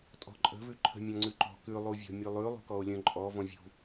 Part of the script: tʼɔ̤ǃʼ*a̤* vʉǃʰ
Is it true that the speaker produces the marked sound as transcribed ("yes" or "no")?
no